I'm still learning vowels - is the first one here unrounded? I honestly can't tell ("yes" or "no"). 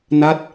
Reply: yes